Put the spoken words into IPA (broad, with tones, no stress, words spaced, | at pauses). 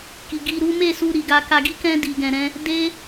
ki˨ɡi˧ɾu˦ me˦˨su˧ ɾi˨ɡa˧ ka˧ɡi˦kɛ̃˦ di˧ɡɛ̃˧ɾɛ̃˦ | de˦